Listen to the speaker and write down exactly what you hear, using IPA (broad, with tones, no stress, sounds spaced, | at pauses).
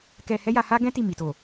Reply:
k ɛ˧ h ɛ˦ j a˧ h a˦ ɡ ɛ̃˦ t i˦˨ m i˨ t o˨